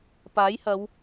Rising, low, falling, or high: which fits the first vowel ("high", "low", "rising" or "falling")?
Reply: rising